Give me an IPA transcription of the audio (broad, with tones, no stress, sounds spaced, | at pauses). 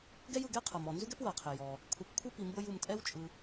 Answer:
ɡ ɛ˥ j ɯ˨ ɡ ɛ˥ qʰ ɤ˩ m ɔ˩ n z u˥ ɡ ɛ˥ p w ɤ˩ qʰ e˩ j ɔ˩ | kʷʰ ɛ˨ p kʷʰ ɯ˥ p i˨ m b ɤ˦ j u˨ m tʼ ɛ˥ w t͡ʃʼ ɯ˨